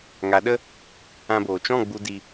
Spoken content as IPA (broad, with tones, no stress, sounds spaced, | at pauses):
ŋ a˨˦ ɗ ə˦ | ã˧ b oː˨ t͡ʃ ɔ̃˦˨ ɡ͡b u˧ d i˧